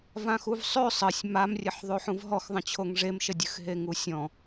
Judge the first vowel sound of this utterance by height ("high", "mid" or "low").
low